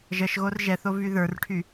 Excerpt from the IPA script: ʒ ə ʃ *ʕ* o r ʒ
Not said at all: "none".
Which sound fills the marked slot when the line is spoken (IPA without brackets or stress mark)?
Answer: ɣ